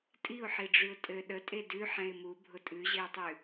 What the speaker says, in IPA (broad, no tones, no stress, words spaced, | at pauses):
tʼiʊ̯ħiɖ͡ʐʉʊ̯ tʼɘ ɗətʼe dʉ ħɛ̃ɪ̯mu bʱʊtʼʉʑeʊ̯tˤʉ